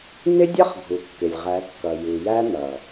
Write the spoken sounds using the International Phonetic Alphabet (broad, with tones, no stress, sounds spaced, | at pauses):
n̪ ɪ˦ dʲ ʌ˦ χ ɡʱ u˨ kː ɪ˨ lʲ ʁ æ˨˦ kː ʌ˨ j u˨ j æ˦ n̪ ʌ˨